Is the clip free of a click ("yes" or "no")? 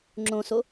no